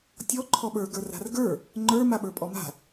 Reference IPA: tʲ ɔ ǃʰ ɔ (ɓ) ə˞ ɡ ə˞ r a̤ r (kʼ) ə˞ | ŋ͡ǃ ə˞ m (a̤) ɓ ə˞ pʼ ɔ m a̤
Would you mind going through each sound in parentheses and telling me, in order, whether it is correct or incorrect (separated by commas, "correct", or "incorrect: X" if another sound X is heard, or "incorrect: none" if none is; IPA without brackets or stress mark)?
correct, incorrect: ɡ, incorrect: a